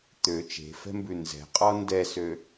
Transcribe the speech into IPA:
t̪ ø t͡ʃ e̤ f ɛ̤ m b ʉ n z ɛ̤ qʼ ɔ n d ɛ s ø

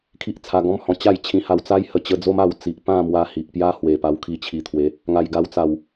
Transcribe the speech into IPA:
kʰ i˦ ʔ t͡sʰ a˧ ɡ ɔ̃˦ m h ɔ̃˧ t͡ɕ a˥˧ j t͡ɕʰ ĩ˧ h a˧ w t͡s a˦ j h ə˧ t͡ɕ ə˧ d͡z o˦ m a˧ w t͡s i˨ ʔ p ã˥˧ m w a˧ h i˨ ʔ p j a˦ h w e˨˩ p a˧ w kʰ i˧ t͡ɕʰ i˨˩ t̪ʰ w e˨˦ | ŋ a˨˩ j ɡ a˧ w t͡s a˨˩ w

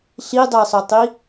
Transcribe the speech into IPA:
ɬ i dˤ ɛ sˤ ʊ tˤ i

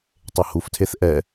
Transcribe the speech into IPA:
tˤ e h u f tʰ e θ ʔ ɛ

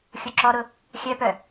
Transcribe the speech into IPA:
xʲ u ǁ ɔ ɾ ʊ | xʲ œ p œ

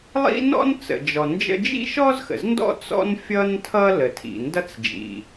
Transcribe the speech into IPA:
lˠ ḭ˥ n ɔ̰˥ n t͡s ə̰˩ d͡ʒ ɔ˩ n d͡ʒ ə̰˥ d͡ʒ ḭ˥ ʃ ɔ˥ z x ə̰˩ z n d ɔ̰˥ t͡s ɔ̰˥ n fʲ ʌ˥ n tʰ ʌ˥ l ə˩ tʰ ḭ˩ n d ʌ˥ t͡s d͡ʒ ḭ˩

